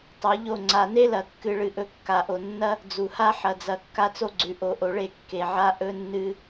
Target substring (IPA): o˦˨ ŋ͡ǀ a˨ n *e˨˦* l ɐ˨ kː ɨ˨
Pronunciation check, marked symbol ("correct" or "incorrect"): incorrect